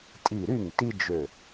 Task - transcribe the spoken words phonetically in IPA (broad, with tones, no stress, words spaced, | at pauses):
tʼi˧˩ɾy˥˩ŋti˦d͡ʒø˧˩